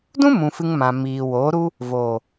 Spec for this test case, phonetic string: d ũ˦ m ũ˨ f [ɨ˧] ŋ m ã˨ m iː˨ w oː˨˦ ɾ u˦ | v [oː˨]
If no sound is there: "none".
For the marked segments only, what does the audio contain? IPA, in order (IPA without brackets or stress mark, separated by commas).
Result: ɨ˧, oː˨